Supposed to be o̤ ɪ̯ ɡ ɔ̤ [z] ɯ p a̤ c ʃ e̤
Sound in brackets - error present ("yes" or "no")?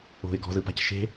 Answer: no